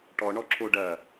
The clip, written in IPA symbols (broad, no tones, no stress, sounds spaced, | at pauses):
ʈ ɔ ɳ ɔ ǁ o ɖ ɐ